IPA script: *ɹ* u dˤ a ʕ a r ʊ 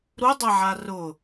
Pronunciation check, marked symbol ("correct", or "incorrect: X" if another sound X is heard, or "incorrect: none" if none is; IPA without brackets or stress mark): incorrect: ɾ